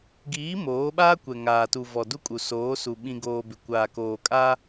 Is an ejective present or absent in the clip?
present